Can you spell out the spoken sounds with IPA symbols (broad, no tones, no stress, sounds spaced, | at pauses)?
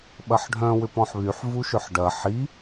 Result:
ɓ ɐ ħ ɖʱ œ̃ w ʏ p ɔ̃ ħ β y ħ v u ʃ ʏ ħ ɖ ɐ ħ i